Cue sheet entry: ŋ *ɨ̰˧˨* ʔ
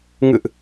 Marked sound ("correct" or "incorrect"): correct